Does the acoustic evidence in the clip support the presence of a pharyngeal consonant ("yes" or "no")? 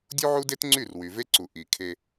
yes